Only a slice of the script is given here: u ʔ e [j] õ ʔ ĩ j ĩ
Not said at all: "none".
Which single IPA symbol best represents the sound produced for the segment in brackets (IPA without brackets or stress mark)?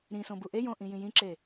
j